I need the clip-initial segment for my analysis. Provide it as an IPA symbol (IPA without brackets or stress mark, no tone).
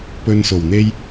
p